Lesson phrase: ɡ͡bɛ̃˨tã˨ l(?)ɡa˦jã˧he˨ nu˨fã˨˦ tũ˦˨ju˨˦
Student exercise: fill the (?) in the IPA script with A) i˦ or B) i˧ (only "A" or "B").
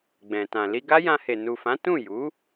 B